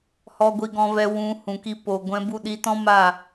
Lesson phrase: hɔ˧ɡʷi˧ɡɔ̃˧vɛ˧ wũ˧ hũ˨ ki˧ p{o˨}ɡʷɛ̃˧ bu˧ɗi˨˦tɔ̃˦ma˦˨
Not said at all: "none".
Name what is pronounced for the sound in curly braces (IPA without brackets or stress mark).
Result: o˨